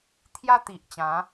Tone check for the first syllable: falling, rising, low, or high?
high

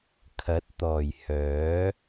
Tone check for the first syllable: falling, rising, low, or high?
rising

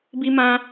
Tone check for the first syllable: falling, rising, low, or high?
high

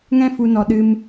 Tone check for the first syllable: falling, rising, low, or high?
high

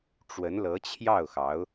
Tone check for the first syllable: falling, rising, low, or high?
rising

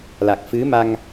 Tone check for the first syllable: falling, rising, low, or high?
low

